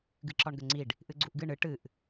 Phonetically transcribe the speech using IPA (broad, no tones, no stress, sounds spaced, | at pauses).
ɡ ɨ ǁ ɒ ɳ ɡ ə ŋ͡ǀ i ɖ | ʔ ɨ ɡ͡ǀ u ʔ ɡ ɨ ɳ ɨ ʈ ɨ ʔ